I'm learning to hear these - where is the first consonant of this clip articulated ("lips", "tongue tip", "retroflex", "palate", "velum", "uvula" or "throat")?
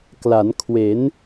velum